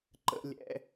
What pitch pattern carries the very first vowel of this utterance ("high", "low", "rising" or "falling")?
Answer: high